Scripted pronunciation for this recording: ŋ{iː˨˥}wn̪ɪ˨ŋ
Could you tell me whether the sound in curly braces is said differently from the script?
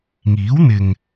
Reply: no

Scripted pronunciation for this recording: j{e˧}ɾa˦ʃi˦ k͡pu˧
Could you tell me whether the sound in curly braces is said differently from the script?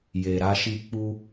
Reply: no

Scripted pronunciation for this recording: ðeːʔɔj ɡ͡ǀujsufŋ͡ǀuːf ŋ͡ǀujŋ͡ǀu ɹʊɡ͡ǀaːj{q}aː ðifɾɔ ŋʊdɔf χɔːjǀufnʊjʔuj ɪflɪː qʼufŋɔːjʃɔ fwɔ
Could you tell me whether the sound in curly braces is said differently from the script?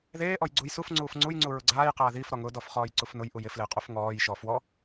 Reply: no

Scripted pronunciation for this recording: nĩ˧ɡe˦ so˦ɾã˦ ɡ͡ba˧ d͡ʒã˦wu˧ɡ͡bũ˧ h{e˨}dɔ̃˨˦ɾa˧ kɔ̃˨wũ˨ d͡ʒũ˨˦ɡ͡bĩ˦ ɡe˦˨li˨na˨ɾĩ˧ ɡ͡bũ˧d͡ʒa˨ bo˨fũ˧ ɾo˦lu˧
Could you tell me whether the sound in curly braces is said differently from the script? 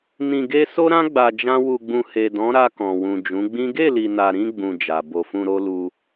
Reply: no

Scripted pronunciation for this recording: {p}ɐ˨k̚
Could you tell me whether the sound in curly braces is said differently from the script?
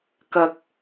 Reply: yes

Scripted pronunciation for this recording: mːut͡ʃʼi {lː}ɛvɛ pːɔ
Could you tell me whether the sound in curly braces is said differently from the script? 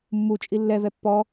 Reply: no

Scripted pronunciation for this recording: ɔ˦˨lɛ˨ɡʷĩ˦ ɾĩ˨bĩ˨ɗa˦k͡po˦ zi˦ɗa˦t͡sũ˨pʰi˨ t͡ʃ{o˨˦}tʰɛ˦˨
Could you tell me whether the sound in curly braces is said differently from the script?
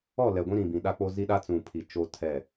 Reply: yes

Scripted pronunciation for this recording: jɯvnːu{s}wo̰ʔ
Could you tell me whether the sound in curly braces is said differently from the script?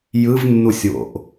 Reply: yes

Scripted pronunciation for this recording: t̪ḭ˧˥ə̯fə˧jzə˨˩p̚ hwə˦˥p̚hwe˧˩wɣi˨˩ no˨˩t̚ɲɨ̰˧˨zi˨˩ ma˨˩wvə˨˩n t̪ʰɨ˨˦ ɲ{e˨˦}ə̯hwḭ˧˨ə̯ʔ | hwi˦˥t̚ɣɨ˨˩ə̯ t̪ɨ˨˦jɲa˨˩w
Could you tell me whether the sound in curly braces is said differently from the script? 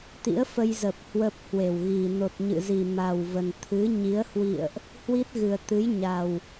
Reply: yes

